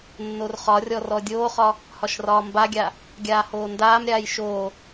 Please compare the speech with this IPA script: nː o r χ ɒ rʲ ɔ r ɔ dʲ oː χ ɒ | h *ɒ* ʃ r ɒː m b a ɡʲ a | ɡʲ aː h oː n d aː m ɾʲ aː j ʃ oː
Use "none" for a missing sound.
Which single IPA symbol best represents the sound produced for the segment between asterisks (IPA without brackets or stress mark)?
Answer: ɒ